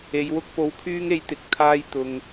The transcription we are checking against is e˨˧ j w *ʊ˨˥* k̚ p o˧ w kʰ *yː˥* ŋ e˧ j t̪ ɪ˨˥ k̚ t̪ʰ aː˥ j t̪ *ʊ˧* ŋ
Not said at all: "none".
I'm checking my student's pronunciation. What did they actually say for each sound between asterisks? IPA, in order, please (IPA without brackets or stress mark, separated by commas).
ʊ˥, yː˥, ʊ˧